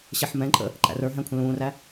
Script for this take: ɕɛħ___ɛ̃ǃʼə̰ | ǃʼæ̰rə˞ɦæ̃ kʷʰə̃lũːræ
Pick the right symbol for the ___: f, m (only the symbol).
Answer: m